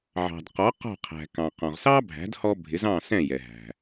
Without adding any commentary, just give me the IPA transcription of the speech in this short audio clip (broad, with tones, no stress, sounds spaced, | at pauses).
ʕ ɑ̤˩ d q ɔ˩˥ q ɔ̤˥˩ qʰ æ̤˩ k ɑ̃˩ q ɔ̃˩ ʁ s ɑ˥ bʱ æ̤˩˥ d h ɔ˧ bʱ ɪ˩˥ z ɑ̃˥˩ s ɛ̃˥˩ j ɛ˩ ɦ æ̤˩